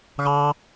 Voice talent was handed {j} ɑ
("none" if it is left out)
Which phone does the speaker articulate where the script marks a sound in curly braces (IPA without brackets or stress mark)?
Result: ɣ